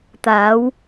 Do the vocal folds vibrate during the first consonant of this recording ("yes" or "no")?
no